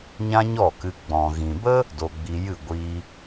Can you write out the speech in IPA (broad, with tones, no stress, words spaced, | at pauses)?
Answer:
ɲã˦ɲɔ˦˨kɨ˧ ɡ͡bɔ̃˨ɣĩ˨bə˦ | do˧ɡ͡bi˧jɨ˦˨ ɡʷi˧